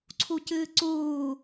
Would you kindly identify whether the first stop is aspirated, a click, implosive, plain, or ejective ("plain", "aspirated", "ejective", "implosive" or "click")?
click